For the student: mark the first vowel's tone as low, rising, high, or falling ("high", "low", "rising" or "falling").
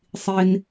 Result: low